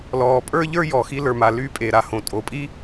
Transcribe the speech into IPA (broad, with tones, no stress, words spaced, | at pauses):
lɔː˩pʼə˞˥ʎə˞˥ jɔ˩xi˧lə˞˩ma˩ ly˧pʼe˩ɾa˩ hõ˩tʼo˩pʼi˥